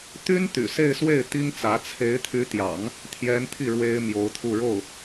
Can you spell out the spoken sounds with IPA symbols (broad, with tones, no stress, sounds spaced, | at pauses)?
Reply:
t̪ y˥ n t̪ y̰˨˩ s e˥˧ ɪ̯ s w e˥˩ ɪ̯ t̪ i˥ ŋ t͡s ä˧˥ t͡sʰ e˧˥ ɪ̯ t̪ʰ y˧˥ t̪ j ɑ̰˨˩˦ ŋ | t̪ʰ j ɛ˧˥ n t̪ʰ i˥˩ ɻ w e˥ ɪ̯ m j o˧˥ ʊ̯ t̪ʰ u˥˧ ɻ o˥˩ ʊ̯